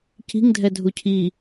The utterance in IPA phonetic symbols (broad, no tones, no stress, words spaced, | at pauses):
ci̤ŋdʱɛ dʱucʰi